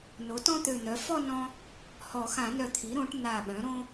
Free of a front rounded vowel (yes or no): no